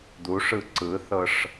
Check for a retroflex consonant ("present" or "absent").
present